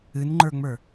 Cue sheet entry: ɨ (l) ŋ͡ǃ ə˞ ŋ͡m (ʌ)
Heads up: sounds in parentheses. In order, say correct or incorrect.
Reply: incorrect: n, incorrect: ə˞

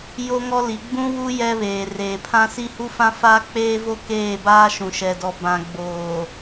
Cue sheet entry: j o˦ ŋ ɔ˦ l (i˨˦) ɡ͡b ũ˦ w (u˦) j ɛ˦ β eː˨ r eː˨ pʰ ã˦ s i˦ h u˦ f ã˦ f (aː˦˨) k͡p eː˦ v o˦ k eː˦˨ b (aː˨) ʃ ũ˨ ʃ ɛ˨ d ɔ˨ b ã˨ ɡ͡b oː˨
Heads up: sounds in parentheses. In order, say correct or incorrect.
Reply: correct, correct, incorrect: aː˦, incorrect: aː˦

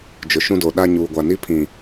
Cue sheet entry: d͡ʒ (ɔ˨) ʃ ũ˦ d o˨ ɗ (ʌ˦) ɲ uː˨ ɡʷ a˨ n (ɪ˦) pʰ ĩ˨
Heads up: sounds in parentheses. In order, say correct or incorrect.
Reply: incorrect: ʊ˨, incorrect: a˦, incorrect: i˦

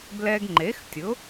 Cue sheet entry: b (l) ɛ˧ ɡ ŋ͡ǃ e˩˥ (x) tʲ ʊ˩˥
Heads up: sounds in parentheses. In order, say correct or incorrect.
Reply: correct, correct

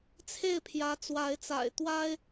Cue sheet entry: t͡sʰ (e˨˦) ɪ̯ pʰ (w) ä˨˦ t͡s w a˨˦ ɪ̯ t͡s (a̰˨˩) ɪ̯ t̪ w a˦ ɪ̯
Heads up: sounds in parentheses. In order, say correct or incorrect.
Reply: incorrect: e˥˨, incorrect: j, correct

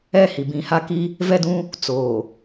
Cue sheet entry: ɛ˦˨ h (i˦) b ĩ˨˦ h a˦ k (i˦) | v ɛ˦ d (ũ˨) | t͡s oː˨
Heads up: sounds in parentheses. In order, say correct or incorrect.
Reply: incorrect: i˨, correct, incorrect: ũ˦

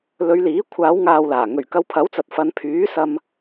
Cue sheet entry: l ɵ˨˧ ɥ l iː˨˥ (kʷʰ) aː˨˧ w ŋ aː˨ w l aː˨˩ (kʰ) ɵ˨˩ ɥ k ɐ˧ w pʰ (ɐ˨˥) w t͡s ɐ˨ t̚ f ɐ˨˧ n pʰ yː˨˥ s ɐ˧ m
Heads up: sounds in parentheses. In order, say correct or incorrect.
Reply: correct, incorrect: ŋ, correct

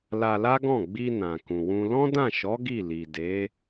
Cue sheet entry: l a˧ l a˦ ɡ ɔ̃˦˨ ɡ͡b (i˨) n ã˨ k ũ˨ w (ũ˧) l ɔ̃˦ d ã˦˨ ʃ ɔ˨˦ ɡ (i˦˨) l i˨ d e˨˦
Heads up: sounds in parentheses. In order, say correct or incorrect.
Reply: incorrect: i˧, correct, correct

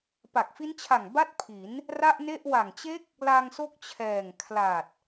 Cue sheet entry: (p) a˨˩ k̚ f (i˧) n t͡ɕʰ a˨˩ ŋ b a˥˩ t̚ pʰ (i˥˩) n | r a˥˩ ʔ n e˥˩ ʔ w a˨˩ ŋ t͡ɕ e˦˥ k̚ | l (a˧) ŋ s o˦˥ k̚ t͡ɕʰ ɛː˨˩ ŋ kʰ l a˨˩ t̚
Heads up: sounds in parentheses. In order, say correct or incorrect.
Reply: correct, incorrect: i˦˥, incorrect: i˩˦, correct

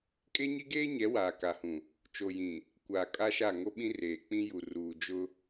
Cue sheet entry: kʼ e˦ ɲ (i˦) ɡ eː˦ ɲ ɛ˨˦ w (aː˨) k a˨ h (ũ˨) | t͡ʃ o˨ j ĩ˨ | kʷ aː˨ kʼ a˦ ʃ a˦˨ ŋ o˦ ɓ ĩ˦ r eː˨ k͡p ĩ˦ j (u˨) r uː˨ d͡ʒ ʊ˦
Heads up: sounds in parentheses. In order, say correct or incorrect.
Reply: correct, correct, correct, correct

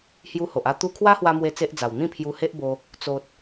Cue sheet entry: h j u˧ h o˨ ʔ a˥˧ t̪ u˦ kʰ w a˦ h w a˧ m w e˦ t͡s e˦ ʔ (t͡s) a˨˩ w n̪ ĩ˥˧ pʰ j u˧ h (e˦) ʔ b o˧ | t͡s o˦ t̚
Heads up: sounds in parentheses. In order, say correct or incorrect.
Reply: incorrect: d͡z, correct

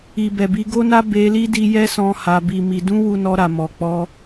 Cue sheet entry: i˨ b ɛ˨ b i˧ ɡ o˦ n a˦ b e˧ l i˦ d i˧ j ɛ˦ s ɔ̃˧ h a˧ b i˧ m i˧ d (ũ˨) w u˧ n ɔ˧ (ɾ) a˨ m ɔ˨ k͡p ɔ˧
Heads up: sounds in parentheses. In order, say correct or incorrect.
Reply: incorrect: ũ˦, correct

